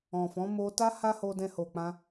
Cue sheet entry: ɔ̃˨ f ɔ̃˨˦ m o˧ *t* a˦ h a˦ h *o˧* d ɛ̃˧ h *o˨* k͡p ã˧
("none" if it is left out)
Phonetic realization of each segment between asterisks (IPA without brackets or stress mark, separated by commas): t, o˧, o˨